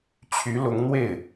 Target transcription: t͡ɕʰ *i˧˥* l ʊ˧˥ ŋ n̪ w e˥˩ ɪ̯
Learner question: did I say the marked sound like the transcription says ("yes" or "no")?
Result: no